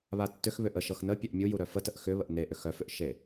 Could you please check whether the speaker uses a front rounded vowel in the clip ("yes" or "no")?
yes